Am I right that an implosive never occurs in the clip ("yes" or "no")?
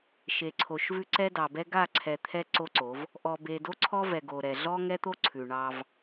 yes